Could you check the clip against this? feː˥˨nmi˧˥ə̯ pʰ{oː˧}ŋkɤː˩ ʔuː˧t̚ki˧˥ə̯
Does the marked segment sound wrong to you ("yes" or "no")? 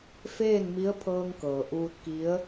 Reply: yes